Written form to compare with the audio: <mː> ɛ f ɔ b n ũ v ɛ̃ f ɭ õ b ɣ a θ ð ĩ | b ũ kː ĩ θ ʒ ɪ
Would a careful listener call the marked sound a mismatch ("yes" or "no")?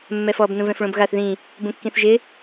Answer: no